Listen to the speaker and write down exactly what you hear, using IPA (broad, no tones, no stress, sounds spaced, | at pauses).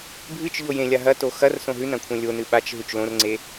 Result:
bʱ ɨ t͡ʃ ʎ o j ẽ lʲ a ɦ ɐ t o x ɐ r s õ ɦ ʉ n ɐ̃ kʷʰ ẽ lʲ o n ɨ ɓ a t͡ʃ ɦ ʉ t͡ʃ l õ r ŋ͡ǀ e